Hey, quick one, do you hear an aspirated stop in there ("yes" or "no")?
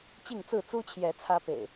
yes